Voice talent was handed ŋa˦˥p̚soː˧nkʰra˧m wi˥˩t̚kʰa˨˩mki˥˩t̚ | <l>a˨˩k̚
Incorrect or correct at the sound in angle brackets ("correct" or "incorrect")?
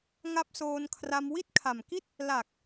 correct